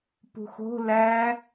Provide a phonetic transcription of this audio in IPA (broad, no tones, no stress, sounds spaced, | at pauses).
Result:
p ṳ x o̤ l æ